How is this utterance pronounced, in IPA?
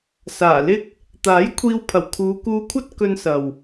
s aː˨˩ l ɪ˥ k̚ | t̪ aː˨˥ j kʷʰ iː˧ w pʰ ɐ˨˩ w kʰ uː˨˧ k uː˧ kʷʰ ɐ˥ t̚ k ɵ˧ n s ɐ˨ w

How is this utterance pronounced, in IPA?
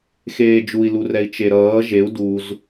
x eː d͡ʒ u i̯ l u r ɛ i̯ t͡ʃ e ɾ ʌː ʒ e u̯ d u z

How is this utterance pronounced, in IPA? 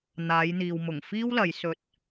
n̪ aː˨˧ j n̪ iː˨ w m ʊ˨˩ ŋ f iː˥ w l ɐ˨˧ j s ɵ˧ t̚

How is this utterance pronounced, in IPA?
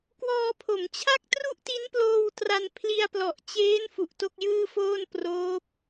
k w ɔː˧ pʰ o˩˦ m t͡ɕʰ a˥˩ k̚ t r u˥˩ ʔ t i˦˥ n p l oː˧ w t r a˧ n pʰ l i˧ a̯ p l ɔ˨˩ ʔ t͡ɕ eː˦˥ n f u˨˩ ʔ t o˥˩ k̚ j ɯː˥˩ f oː˥˩ n p r oː˦˥ p̚

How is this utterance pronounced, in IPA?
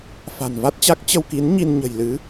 f a̤˨˩ n v a˦˥ t̚ t͡ɕ a˦˥ k̚ t͡ɕ ə˧ w k i˨˦ n ɲ i˧ n ɲ ə̤˨˩ j l ɨ˨˦

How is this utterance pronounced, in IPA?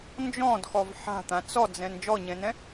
n d͡ʒ ɔ̃ d x ɔ v ħ a̤ t̪ ã t͡s ɔ d͡z ɛ̃ n d͡ʒ ɔ ɲ ɛ̃ n ɛ̃

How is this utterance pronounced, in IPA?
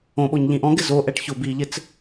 õ ɓ o ɲ ʎ ĩ ʔ ɔ̃ ɡ ɪ z o ʔ ɛ ʈ ç ʊ b i ʎ ɪ t͡s

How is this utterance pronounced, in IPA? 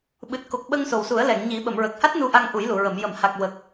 ɓ ɨ˨˩ t̚ k o˨˩ k̚ ɓ ə˧ ŋ s o˨˩ w s u˨˩˦ ə̯ l ɛ˨˩˨ ŋ ɲ i˨˩˦ ɓ ə˨˩˨ m ɹ ə˨˩ k̚ h a˦˥ t̚ n u˧ ʔ a˧ ŋ ʔ u˨˩˦ j l u˨˩˨ ɹ ə˨˩˨ m j ə˨˩˨ m h a˨˩ k̚ w ə˨˩ k̚

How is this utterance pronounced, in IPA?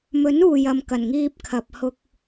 m ɵ˨˥ n uː˨ j ɐ˨ m k ɐ˨˩ n ŋ iː˧ p̚ kʰ ɐ˨ p̚ h ʊ˧ k̚

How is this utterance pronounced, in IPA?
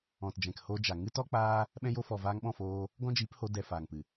ɔ̃˨ t d͡ʒ ɛ̃˨ k h o˧ d͡ʒ a˨ ŋ ɨ˦ t ɔ˦ k͡p aː˦ | ɓ ɛ̃˧ j o˧ f ɔ˨ v aː˧ ŋ ɓ ɔ̃˦˨ f oː˧ | ɡ ɔ̃˦ d͡ʒ iː˨˦ p h o˧ d ɛ˨ f aː˨ ŋ p ɨ˨

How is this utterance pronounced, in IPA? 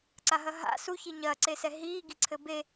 ǀ a ɦ ɐ ɦ a̰ s u ç i ɲ ɐː ǀ e s ɛ ɦ iː ɡ i ǀʰ ɘ b e

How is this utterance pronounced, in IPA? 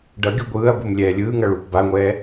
ɖ ʌ ɡʲ u ɡʷ ɯː ɐ̯ b u m lʲ ɛː lʲ ɯː ŋ ʌ ɭ uː p b a ŋʷ ɛː

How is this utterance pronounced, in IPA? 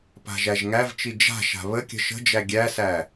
p a̤ ʒ æ ʒ ŋ æ v t͡ʃ i d͡ʒ a̤ ʃ a̤ β ə kʲ ə̤ ʃ ə̤ d͡ʒ æ ɡʲ æ s æ

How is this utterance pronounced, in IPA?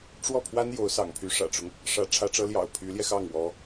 ʈ͡ʂ w ɔ˥˩ pʰ w a˥ n j o˧˥ ʊ̯ s ɑ̰˨˩ ŋ pʰ y˧˥ ʂ ä̰˨˩ ʈ͡ʂ ʊ˦ ŋ | ʂ ä˧˥ ʈ͡ʂʰ ä˧˥ ʈ͡ʂ ɤ˧˥ l j ɑ̰˨˩ ʊ̯ pʰ y˧˥ l j ɛ˧ x ɑ˥˩ ŋ w ɔ˧˥

